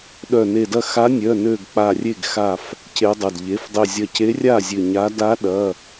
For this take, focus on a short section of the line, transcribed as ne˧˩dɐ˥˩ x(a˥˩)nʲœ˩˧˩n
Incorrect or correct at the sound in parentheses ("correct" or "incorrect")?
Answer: incorrect